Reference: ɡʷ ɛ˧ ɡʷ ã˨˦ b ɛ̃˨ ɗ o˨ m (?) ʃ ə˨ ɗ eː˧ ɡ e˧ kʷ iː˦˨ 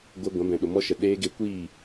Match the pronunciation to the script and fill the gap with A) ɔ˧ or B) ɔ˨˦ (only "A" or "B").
A